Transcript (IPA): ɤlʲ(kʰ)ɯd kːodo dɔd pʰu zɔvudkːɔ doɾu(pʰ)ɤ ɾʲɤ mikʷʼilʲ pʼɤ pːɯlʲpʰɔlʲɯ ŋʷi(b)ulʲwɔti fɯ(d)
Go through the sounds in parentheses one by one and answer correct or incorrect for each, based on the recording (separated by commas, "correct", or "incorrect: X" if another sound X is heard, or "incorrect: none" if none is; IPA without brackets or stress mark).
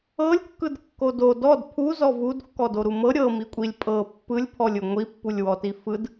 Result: incorrect: kː, incorrect: m, incorrect: pː, correct